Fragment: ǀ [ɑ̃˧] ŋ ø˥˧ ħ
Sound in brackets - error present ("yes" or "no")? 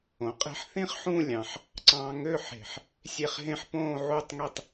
no